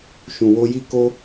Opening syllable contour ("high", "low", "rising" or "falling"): low